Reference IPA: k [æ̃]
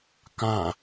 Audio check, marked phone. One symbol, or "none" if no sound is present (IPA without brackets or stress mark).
ã